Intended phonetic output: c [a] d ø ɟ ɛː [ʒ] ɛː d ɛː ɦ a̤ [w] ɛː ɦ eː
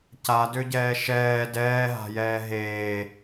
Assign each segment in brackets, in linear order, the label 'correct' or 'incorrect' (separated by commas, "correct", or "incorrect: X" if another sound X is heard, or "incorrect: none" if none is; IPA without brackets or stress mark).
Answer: correct, incorrect: ʃ, incorrect: j